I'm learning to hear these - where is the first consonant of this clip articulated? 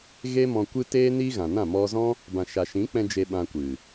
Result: velum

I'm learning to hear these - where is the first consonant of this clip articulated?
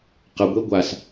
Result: uvula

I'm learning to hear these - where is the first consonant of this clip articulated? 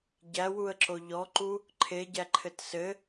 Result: palate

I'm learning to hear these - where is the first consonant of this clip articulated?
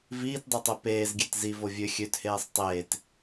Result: lips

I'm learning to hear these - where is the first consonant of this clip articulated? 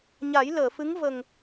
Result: palate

